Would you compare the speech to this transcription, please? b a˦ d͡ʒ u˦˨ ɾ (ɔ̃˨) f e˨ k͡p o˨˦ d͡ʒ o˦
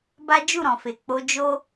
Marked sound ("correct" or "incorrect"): correct